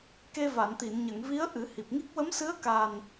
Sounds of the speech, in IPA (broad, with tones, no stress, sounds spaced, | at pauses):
k e˧ v a˨˩˨ n t̪ i˨˩˨ n ɲ ə˨˩˨ ŋ v i˧˥ ə̯ ʔ ɨ˨˩˦ h i˨˩ p̚ ŋ i˦˥ k̚ w ə˧˥ m s ɨ˧˥ ə̯ k a˨˩ n